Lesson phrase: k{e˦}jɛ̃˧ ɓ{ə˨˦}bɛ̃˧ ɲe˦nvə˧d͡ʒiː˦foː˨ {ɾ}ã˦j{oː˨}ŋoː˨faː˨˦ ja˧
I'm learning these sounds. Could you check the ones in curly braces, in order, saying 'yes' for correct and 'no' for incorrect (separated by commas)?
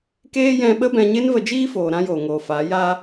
no, no, yes, yes